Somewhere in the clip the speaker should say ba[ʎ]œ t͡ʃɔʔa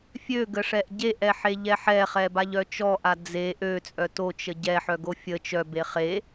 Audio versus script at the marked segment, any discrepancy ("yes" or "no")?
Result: no